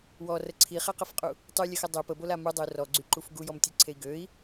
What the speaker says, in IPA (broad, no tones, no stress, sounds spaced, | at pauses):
w ɔ r ə ǀʰ i χ ɛ q ə f qʼ u | tˤ y lʲ ə x ə dˤ ø p ə b o l a m u dˤ ə u̯ r ɔ ɡ͡ǀ y ǃ u f ɡ u j ɔ m tʲ e ǀʰ e i̯ ɡ ø i̯